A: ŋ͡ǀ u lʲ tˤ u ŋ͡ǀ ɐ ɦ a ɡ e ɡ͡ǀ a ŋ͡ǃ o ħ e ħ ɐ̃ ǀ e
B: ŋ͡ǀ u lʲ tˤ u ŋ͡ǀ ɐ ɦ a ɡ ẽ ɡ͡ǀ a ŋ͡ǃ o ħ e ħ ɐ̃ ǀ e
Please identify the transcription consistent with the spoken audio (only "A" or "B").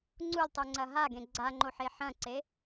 B